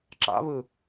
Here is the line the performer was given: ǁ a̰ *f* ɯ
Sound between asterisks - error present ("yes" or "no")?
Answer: yes